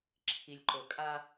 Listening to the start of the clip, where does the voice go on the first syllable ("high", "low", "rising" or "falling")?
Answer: low